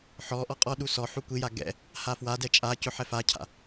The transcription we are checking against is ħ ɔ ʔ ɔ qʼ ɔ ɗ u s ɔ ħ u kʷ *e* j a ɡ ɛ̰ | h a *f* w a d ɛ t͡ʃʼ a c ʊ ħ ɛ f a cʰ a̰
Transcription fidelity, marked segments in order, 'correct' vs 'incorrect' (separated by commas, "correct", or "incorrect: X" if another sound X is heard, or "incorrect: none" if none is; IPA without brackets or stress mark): incorrect: i, correct